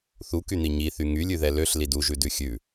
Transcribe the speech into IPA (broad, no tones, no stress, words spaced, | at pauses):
θukyn̪i ɲiθy ŋylʲʉðɛ løɬlid uʒʉdʉ xʲʉ